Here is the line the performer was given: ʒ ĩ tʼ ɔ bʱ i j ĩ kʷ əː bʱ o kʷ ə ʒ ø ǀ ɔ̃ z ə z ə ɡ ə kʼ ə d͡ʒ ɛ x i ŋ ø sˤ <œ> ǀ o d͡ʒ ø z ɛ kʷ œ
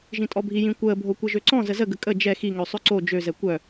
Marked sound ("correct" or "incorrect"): incorrect